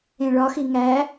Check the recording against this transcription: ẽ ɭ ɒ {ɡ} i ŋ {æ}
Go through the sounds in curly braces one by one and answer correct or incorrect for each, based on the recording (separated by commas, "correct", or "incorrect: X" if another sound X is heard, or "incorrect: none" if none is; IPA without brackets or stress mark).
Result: incorrect: x, correct